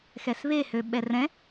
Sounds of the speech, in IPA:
x ɛ s β e h ø ɓ ɛ r ɛ̃

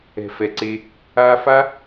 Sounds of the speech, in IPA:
ɛ̤˨ f ɛ˨ ǀ e˧ | aː˧ f a˦

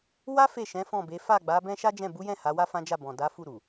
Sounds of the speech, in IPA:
w a˦ f e˦˨ ʃ ɛ̃˨˦ f ɔ̃˦˨ b e˨˦ f a˦˨ ɡ͡b a˨˦ b ɛ̃˦ ʃ a˦ d͡ʒ ɛ̃˦˨ b u˨˦ j ɛ̃˦˨ h a˨˦ w a˦ f ã˦ d͡ʒ a˦˨ b ɔ̃˨ d a˨˦ f u˦˨ ɾ u˨

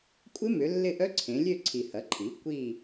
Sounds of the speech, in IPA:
kʷʼ ɪ˦˥ m ʏ˩˧ lː ɪ˦˨ ʔ œ˦˥ ǀʰ ẽ˩˧ lʲ ø˦˨ ǀʰ i˨˩ h ɐ˩˥ ǃʰ i˩˥ kʷ i˦˨

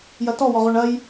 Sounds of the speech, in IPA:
j ɐ t ɔ w ɔ ʁ o ɳ ɐ j

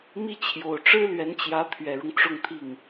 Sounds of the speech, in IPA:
m i˥˩ t͡ɕʰ j o˨˩ ʊ̯ ʈ͡ʂ ɻ̩˥ l ɥ ɛ˧˥ n t͡ɕ j ä˧˥ t̪ʰ ɥ ɛ˨˩ ɻ ʊ˦ ŋ ʈ͡ʂ ʊ˥˧ ŋ t̪ʰ i˥˩ ŋ

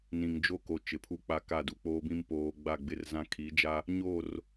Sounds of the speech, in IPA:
n ĩ˨ ŋ d͡ʒ o˦ k o˨ t͡ʃ ɪ˨˦ pʰ u˦ k͡p a˦ k a˦˨ d u˨ k͡p oː˦ b ĩ˦ m p oː˨ ɡ͡b a˦˨ ɡ͡b ɪ˦ r z ã˦ kʰ i˨˦ d͡ʒ a˦ | ɲ o˦˨ r

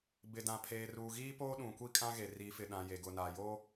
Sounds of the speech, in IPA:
b ɪ˨ d ã˨ pʰ eː˨ r uː˨ ɣ iː˦ p oː˦ ɗ ũ˨ kʷ i˦ kʼ ã˦ ɣ e˨ r i˨˦ f ɪ˨ ɗ ã˨ j e˨ ɡ ʊ˨ n a˨ j o˦

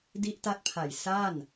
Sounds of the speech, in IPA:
d i˦˥ ʔ t a˦˥ t̚ pʰ a˨˩ j s a˥˩ n

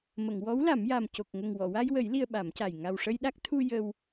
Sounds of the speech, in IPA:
m ə˨˩˨ ŋ w ɔ˧˥ w l a˨˩˦ m j a˨˩ m c o˨˩ k̚ ŋ ə˨˩ ŋ w ɔ˨˩˨ w a˧ j w ə˨˩˦ j l i˧ ə̯ ɓ a˨˩˦ m c a˨˩ j ŋ a˨˩ w ʂ ə˧ j ɗ a˦˥ k̚ t̪ʰ u˧ j ə˧ w

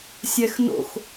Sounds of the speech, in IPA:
sʲ ɛ x n o̰ x

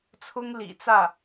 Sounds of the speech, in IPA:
t͡sʰ ʊ˥ ŋ l ḭ˨˩ t͡s ä˥˩

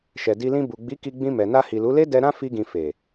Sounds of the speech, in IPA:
ʃ ɛ˨ d i˧ l ĩ˧ b u˨ ɡ͡b i˨˦ k i˧ ɡ͡b ĩ˧ m ɛ˨ n a˧ h i˨ l u˨˦ l e˦ d ɛ˧ ɾ ã˦ f i˧ ɡ ĩ˨ f e˨

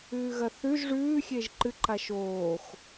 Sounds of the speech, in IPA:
ʉː ɣ ɐ θ ʉ ʒ ʐ ʉː xʲ e ʒ ǃ ɨ ǃ a ʃ oː x

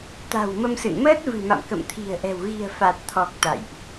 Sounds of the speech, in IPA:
t̪ a̤˨˩ w m ə˧ m s ɨ̰˧˨ n m əː˦˥ t̚ v ɨ̤˨˩ m a̰˧˨ m k ə̰˧˨ m t̪ʰ i̤˨˩ ə̯ ʔ ɛ̤˨˩ w ɣ i̤˨˩ ə̯ f a˨˩ t̚ t̪ʰ ɔ˨˩ k̚ t̪ a̰˧˨ j ʔ

